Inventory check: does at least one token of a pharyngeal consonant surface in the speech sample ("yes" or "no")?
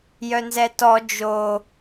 no